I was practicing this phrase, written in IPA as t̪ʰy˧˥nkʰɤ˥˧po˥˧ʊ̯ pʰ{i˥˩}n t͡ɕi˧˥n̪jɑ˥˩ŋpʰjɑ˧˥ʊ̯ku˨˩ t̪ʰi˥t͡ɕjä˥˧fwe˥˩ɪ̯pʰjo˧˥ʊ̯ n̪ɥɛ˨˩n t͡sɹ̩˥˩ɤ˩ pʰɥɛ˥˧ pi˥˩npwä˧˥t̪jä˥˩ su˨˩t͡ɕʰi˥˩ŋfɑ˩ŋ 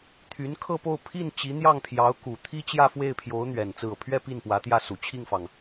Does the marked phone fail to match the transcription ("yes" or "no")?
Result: no